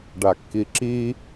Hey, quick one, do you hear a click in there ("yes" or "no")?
yes